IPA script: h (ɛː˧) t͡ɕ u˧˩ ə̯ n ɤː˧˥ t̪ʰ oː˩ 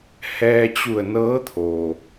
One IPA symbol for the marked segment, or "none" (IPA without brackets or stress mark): ɛː˧